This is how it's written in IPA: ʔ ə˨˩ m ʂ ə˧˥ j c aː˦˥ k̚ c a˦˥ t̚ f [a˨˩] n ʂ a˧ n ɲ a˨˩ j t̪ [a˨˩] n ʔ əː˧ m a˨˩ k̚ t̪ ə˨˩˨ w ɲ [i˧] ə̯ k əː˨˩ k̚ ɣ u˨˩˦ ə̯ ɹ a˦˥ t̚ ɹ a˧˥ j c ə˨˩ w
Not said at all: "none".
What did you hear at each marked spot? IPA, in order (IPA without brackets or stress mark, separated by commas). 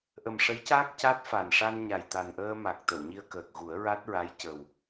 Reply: a˨˩, a˨˩, i˧